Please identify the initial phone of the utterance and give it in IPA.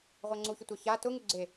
ʁʷ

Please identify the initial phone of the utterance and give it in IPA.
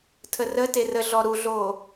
tʰ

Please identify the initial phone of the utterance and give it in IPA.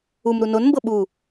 u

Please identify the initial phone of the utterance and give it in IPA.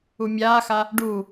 u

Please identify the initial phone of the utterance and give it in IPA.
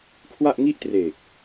kʰ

